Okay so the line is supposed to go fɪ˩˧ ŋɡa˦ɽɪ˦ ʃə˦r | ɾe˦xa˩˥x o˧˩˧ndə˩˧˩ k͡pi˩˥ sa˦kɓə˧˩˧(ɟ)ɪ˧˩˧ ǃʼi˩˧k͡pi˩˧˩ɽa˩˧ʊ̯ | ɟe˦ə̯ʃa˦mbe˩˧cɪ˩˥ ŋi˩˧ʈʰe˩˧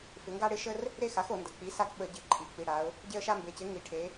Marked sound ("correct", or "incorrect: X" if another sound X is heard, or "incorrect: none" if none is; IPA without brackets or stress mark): correct